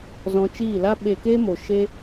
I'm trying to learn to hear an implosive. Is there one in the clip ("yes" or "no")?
yes